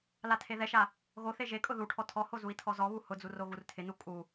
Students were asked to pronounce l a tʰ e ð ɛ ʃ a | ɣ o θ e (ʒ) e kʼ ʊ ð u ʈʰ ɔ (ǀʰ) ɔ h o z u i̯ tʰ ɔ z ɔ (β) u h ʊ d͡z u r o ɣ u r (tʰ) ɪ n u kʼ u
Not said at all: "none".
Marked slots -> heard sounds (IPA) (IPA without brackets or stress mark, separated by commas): ʒ, tʰ, β, tʰ